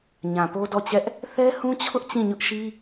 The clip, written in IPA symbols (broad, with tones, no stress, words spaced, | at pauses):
ɲã˨po˦dɔ˦˨t͡ɕɛ˦ʔ | θɛ˦hũ˦t͡ɕʰʊ˦ʔ t͡ɕĩ˦˨ɲʊ˦ʔʃi˦